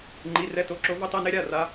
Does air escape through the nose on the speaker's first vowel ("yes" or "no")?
no